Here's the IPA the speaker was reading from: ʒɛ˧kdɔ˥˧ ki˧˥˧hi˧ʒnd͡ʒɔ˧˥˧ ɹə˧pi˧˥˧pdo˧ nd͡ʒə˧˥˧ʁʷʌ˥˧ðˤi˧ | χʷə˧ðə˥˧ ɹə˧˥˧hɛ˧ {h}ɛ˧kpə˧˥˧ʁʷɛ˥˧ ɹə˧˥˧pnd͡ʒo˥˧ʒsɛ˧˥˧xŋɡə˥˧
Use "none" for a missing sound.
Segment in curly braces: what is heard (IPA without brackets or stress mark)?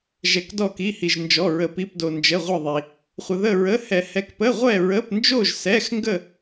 h